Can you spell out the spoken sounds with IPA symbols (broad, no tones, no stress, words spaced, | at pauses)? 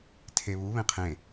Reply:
tʰeβuβẽ qʰẽ